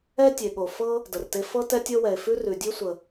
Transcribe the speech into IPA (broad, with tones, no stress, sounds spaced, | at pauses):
ɛ˥ tʲ e˩ ɠ o˩ f ɤ˥ | d ə˩ r t e˥ f ɤ˥ t ɛ˥ tʲ ɤ˥ w ɛ˩ e̯ f ʉ˥ r ʉ˩ dʲ ʉ˥ sʷ ə˩